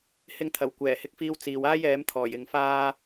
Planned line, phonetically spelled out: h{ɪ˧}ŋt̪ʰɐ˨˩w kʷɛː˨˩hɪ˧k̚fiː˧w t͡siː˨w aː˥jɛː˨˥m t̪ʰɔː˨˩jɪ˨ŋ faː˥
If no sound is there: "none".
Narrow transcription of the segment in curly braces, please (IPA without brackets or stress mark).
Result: ɪ˧